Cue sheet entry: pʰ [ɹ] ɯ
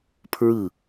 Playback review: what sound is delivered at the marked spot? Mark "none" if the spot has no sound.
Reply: ɹ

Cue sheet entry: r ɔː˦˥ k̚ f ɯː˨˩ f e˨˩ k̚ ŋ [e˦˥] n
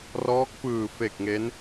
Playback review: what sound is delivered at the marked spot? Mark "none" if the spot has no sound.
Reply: e˦˥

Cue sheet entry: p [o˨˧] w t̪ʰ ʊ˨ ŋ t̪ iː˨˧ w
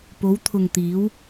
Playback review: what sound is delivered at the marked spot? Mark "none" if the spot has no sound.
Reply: o˨˧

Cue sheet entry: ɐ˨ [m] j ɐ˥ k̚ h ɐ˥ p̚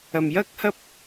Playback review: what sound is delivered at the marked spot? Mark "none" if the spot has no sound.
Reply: m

